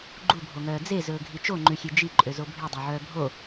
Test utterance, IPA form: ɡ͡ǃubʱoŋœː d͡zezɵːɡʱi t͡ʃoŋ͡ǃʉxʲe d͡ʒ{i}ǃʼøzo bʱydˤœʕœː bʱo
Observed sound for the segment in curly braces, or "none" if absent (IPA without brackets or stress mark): i